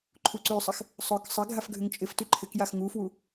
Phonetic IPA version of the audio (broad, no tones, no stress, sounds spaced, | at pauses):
ǃʰ u ǀ y sˤ ɪ x | sˤ ʊ k sˤ ɪ ɡʱ a f ɡʱ ʏ ŋ t͡ʃʼ ɪ f t y ǃʰ ɪ k j a x ŋ u f w u